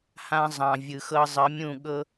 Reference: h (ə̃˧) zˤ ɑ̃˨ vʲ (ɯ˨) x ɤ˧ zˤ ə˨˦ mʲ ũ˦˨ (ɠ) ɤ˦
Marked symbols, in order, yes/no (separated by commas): no, yes, yes